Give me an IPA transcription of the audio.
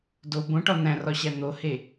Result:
d o b õ ʈ ɒ n̪ æ̃ r ɒ ɕ æ n̪ o h e

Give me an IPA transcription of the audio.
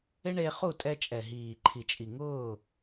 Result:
ɪ˦ ɳ e˧ χ u˦˨ tʼ ɛ˧ t͡ʃʼ ɛ˨ ɦ iː˨ ǃʰ i˨ t͡ʃʼ i˨ ŋ ʊː˦˨

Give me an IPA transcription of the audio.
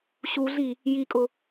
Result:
ɕ u ɮ i | j i kʼ ʊ

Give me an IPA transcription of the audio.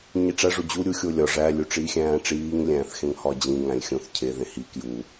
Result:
ɲ i ʈ͡ʂ æ ʐ o d͡ʑ u ɾʲ u xʲ o lʲ ɒ ʐ æ lʲ u ʈ͡ʂ iː xʲ æ̃ː ʈ͡ʂ iː ŋ lʲ æ̃ː θ x ẽ ŋ h ɒ d͡ʑ ĩ ŋ æ̃ lʲ xʲ õ θ cʰ e ð ẽ h i k j u

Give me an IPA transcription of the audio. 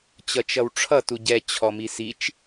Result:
t͡ɕ ʌ t͡ʃ ʌ w ʈ͡ʂʰ ʌ t u ɟ ɛ t͡ɕʰ ɔ m i s i t͡ʃ

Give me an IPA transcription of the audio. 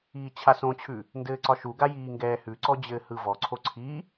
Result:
iː t͡ɕʰ a s õ t͡ɕʰ ʉ | n d ɘː ǀ ɒ ʃ u ɡ a j iː ŋ ɡ ɛː h ʉ ǀ ɔ d͡ʑ ɘː h ɯ v ɔ ǀʰ o ǀʰ i

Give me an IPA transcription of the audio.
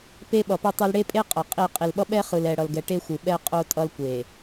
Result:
p e˦ ɓ ʌ˨ p e˦ tˤ ɛ˦ l ɽ e˦ pʼ e˦ qʼ ʌ˨ qʼ i˦˨ qʼ i˨ l ɓ ʌ˦ ɓ ɛ˦ χ ɯ˨ l ɛ˨ ɽ ʌ˨ l ɡ ɛ˨ ʈ e˦ xʷ ɯ˨ ɓ ɛ˦ qʼ o˦ tʼ ʌ˦ l kʷ e˨

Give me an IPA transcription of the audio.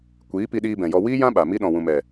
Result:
kʷ iː˨˦ p i˧ ɗ iː˧ b ɛ̃˨ j ɔ˧ w iː˦ j ã˦ ɓ a˨ m i˧ ɗ ɔ̃˨ w ũ˨ m ɛ˨

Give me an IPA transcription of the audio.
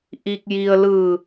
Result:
ʔ i˧ k̚ j i˧ ə̯ l ɯː˧˩

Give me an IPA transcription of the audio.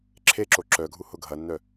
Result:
ǁʰ e ǁ o ǁ œ ɡʱ u h ʊ ɡʱ ɐ nː œ

